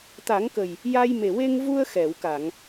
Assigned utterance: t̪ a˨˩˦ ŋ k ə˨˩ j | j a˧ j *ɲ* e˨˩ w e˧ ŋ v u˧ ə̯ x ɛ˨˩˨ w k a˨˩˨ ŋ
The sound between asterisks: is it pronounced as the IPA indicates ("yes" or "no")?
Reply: no